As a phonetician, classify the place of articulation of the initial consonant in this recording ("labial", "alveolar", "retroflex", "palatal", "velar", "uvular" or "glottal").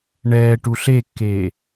retroflex